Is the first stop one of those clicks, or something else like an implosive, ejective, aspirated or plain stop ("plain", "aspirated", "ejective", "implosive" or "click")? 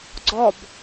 click